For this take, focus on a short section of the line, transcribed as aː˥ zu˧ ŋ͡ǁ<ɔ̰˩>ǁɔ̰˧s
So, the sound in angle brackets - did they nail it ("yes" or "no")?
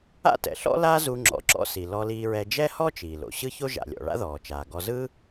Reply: yes